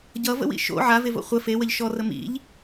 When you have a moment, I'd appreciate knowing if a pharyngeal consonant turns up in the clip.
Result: yes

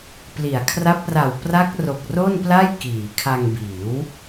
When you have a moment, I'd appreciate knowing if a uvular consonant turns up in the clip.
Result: no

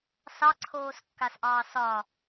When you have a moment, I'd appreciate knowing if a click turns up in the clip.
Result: yes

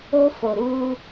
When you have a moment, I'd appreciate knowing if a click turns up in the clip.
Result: no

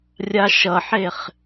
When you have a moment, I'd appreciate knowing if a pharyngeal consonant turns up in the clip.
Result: yes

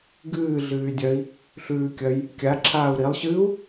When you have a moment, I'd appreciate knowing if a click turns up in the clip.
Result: yes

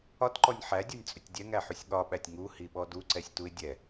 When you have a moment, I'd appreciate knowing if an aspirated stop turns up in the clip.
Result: no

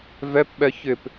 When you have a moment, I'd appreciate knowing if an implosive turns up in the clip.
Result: yes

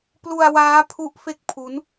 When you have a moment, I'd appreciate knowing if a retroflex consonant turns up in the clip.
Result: no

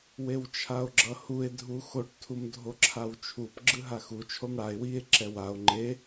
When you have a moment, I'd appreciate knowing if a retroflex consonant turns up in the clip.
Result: yes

